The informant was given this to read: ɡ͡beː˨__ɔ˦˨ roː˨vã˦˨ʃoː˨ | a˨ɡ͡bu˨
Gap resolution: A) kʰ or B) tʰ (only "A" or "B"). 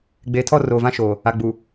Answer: B